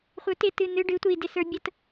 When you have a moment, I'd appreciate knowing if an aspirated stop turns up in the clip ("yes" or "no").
no